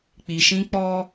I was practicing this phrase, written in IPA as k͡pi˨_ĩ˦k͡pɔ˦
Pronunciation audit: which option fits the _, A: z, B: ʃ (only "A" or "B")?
B